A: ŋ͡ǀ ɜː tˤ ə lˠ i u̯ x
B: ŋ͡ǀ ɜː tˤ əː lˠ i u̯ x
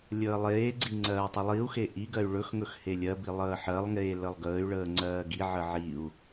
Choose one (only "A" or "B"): A